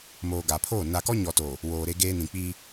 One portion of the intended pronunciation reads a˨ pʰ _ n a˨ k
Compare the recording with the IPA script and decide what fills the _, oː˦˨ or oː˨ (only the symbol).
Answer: oː˦˨